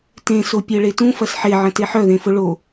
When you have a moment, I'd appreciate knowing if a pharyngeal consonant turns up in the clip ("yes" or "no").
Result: yes